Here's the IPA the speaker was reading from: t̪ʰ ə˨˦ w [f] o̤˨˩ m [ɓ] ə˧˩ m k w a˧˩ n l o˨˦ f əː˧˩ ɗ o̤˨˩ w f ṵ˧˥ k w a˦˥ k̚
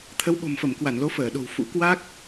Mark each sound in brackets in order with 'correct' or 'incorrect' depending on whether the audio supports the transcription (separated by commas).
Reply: incorrect, incorrect